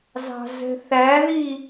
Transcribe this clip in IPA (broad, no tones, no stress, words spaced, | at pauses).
zɑ̤zɛ̤θæði